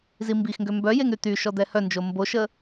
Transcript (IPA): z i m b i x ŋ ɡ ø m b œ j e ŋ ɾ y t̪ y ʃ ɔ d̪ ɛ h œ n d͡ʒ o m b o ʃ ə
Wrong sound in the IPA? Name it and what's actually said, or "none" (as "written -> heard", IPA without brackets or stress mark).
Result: none